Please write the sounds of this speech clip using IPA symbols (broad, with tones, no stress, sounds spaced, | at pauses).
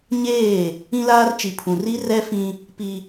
ɲ eː˦˨ | ĩ˦ l aː˦ r t͡ʃ i˨ pʰ ũ˨ r i˦ r ɛ˦ f ĩ˦ | p i˦